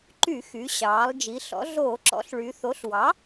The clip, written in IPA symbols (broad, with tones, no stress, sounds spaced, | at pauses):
ǃ y˧˩˧ x y˩˧ ɕ ɑː˩˧ lˠ d͡ʒ i˩˧ ɬ ɔ̰˩˧ ɮ oː˧˩˧ ǁ ɔ̰˩˥ ɬ ɭ y˩˧ θ o˩˥ ɬ w ɑ˩˥